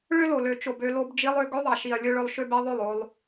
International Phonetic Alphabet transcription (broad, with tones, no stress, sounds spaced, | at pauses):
ɭ ø˦ l o˨ l ø˨ t͡ʃ o˨ b ø˧ l o˧ b d͡ʒ i˧ lˠ ø˧ ɡ ɵ˧ ðˤ ɑ˨ ʃ i˨ ɐ̯ lʲ ɵ˦ ɭ ɵ˧ lˠ ʃ ø˦ b e˦ ðˤ o˦˨ lˠ o˧ lˠ